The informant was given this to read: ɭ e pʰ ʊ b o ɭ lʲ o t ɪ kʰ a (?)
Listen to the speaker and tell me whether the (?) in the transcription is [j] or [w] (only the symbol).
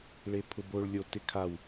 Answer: w